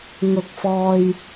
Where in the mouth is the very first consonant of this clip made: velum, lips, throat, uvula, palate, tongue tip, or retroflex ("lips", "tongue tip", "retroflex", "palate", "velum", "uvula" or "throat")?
velum